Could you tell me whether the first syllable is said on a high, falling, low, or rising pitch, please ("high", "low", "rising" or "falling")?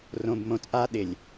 low